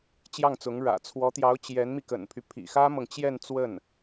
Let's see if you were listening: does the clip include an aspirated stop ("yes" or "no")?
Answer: yes